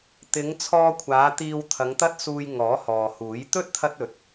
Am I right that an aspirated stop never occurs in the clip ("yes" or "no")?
no